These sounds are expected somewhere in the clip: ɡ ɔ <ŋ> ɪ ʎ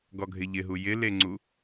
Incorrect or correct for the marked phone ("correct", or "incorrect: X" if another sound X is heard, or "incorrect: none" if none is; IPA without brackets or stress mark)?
incorrect: ɡʱ